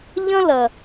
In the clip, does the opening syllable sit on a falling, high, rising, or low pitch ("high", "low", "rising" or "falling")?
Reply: high